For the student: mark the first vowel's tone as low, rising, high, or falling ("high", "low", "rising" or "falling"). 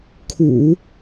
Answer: low